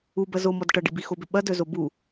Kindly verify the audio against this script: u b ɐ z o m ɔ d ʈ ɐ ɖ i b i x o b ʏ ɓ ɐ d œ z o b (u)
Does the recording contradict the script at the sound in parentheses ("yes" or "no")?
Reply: no